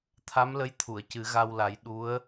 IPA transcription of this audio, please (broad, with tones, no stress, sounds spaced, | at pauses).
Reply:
t̪ʰ a˧˥ m l ə˧˥ j t̪ʰ u˨˩˨ ə̯ c ɨ˨˩˦ ɣ a˧ w l a˨˩˦ j ɗ u˧˥ ə̯